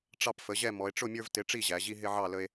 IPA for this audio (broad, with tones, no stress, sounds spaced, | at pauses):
ʈ͡ʂ ɑ˦ p f ə˩˥ ʑ ɛ˥˨ m ɔ˩˧ e̯ ʈ͡ʂ ʊ˥˨ mʲ ə˞˦ v t ɪ˩˥ ʈ͡ʂ i˥˨ ʑ æ˩˧ ʑ i˦ ɦ ɪ˦ ʕ ɑ˥˨ l ə˦ e̯